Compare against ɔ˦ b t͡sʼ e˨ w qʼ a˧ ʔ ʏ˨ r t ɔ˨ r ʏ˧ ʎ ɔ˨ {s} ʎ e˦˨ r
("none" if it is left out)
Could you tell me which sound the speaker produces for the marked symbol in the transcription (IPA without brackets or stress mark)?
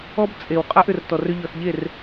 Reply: s